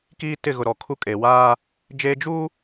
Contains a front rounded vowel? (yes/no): no